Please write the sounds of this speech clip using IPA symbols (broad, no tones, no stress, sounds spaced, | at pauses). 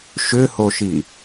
ʃ ʏ h o ʃ i